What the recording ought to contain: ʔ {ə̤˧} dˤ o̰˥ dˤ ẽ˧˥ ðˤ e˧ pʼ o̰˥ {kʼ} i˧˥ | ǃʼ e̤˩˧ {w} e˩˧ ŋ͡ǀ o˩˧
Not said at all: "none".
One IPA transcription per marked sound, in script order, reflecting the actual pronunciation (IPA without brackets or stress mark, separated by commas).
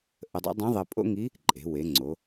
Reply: ə˧, ŋ, w